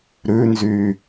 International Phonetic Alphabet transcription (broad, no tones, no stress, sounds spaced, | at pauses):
ɾ ʉ n z yː